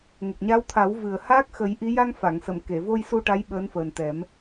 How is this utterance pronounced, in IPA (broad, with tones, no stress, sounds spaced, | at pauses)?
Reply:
ŋ ə˨˩ k̚ ɲ a˧˥ w t̪ʰ a˨˩˦ w v ɨ˨˩ ə̯ h aː˦˥ k̚ x ə˨˩˦ j ʔ i˧˥ j a˧ ŋ f a˨˩˨ ŋ s ə˨˩˨ m k e˨˩˨ v o˧ j s u˧ ʈ a˧˥ j ɓ əː˧˥ n f əː˨˩ n t̪ ɛ˨˩˦ m